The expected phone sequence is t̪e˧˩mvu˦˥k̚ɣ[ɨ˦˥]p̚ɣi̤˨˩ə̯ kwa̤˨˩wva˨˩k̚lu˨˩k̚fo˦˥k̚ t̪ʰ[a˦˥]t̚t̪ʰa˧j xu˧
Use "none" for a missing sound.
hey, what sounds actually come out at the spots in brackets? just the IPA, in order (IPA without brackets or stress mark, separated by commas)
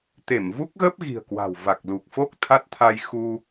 ə˦˥, a˦˥